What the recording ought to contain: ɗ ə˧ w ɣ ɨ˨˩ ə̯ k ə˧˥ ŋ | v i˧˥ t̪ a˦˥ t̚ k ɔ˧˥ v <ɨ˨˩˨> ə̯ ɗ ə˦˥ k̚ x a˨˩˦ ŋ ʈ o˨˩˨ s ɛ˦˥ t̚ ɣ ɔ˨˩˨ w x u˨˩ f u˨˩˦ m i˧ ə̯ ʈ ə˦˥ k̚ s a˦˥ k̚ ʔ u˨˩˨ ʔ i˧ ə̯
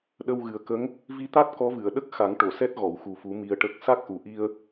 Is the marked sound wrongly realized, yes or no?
no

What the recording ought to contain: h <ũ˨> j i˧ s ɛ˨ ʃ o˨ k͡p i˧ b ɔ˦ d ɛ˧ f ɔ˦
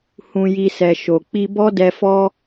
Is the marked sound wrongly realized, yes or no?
yes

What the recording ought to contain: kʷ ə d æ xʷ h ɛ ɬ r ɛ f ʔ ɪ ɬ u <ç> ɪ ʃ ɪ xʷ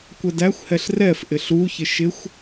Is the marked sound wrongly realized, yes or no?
no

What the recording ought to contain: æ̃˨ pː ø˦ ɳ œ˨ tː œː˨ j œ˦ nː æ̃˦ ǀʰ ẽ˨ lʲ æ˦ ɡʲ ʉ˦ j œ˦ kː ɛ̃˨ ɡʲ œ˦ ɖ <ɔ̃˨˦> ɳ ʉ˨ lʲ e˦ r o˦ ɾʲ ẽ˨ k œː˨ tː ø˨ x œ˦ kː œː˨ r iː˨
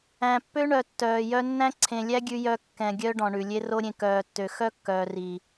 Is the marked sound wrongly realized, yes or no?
yes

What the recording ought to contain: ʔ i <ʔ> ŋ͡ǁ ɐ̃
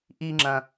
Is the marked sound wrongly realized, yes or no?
yes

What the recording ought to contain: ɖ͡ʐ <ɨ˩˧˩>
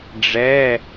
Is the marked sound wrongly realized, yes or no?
yes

